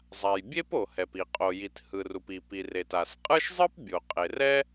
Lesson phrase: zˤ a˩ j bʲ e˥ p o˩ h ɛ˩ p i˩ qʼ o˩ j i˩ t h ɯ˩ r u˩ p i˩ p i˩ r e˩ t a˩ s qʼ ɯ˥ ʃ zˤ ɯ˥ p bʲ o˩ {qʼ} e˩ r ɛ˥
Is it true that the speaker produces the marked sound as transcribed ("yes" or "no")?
yes